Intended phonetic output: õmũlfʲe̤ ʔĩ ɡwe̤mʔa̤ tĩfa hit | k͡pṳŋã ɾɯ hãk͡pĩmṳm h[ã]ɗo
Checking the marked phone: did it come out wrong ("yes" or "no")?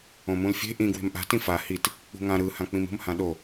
no